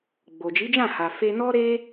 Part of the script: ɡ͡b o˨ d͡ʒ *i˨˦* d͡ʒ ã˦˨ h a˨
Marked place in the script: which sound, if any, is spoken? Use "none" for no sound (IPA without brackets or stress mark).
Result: i˨˦